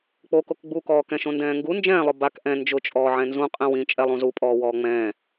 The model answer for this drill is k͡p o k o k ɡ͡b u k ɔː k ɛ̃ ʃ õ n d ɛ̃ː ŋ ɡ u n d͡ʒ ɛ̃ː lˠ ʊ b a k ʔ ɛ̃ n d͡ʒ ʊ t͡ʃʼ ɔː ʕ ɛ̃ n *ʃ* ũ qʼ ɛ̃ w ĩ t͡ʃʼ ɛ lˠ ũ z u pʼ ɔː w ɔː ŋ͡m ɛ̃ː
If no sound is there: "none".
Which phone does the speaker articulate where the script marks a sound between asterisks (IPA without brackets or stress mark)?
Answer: z